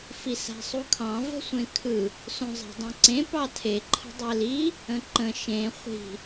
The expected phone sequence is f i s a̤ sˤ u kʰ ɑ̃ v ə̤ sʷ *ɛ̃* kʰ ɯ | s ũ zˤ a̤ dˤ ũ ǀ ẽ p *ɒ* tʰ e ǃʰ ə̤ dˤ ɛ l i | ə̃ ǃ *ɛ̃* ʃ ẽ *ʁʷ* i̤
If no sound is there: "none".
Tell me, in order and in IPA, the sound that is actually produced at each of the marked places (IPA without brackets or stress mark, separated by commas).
ẽ, ɑ, ə̃, χʷ